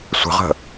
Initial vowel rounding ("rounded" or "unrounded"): unrounded